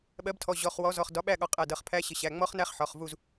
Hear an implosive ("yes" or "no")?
yes